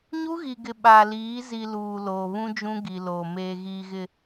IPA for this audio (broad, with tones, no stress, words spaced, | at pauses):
ɲu˦ɣi˨ɡɪ˨ ɓa˨liː˨˦ zi˨ luː˨loː˨ βũ˦ d͡ʒũ˦ɡi˨loː˨ meː˨ɣiː˨ɣɪ˨